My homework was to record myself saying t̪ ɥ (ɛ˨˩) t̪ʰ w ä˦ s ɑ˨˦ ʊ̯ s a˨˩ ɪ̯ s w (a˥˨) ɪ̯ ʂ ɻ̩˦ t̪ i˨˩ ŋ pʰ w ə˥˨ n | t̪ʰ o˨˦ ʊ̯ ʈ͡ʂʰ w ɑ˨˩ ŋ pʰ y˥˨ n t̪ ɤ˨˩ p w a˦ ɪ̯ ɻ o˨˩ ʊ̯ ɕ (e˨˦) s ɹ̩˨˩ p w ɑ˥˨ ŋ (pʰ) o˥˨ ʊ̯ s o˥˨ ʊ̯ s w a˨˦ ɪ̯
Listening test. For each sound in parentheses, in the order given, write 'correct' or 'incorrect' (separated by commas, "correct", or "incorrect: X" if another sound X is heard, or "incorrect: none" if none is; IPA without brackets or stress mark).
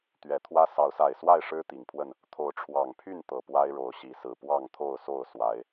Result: correct, correct, incorrect: i˨˦, incorrect: t̪ʰ